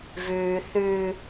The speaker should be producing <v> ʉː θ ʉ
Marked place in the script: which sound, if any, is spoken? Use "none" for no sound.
v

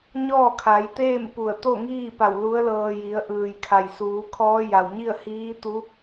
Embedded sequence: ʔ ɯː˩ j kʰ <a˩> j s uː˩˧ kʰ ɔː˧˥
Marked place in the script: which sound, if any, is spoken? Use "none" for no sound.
a˩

